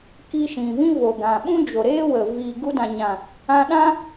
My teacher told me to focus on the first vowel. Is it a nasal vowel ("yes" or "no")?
no